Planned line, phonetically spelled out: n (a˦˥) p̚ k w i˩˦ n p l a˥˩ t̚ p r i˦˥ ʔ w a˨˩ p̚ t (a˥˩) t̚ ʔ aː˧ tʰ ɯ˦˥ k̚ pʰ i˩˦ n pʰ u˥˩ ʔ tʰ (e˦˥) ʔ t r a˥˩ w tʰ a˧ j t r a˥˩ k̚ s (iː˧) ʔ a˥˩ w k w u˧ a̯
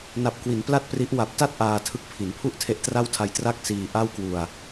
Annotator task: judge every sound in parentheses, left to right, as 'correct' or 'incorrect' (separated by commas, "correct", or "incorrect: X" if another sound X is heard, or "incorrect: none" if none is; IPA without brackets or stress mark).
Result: incorrect: a˨˩, correct, correct, correct